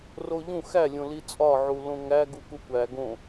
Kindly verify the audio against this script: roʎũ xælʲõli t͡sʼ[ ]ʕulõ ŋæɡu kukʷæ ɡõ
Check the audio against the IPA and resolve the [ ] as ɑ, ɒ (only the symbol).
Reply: ɒ